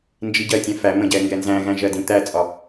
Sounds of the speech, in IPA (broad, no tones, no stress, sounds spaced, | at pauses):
n d͡ʒ i ɟ ɜ tʲ ɛ̃ f æ m ə̃ ɟ ɛ ŋ ɡ ɛ n z æ̃ ɣ æ̃ ʒ ɜ d ĩ t̪ æ t͡sʼ ɒ